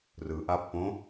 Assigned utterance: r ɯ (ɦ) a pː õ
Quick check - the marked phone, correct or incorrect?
incorrect